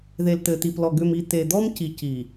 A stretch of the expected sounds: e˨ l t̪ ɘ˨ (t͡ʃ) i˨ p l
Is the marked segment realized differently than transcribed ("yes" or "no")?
yes